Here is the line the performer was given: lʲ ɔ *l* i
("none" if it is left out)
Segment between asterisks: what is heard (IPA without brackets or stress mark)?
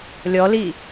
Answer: l